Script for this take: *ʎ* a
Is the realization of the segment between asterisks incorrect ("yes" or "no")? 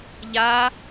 no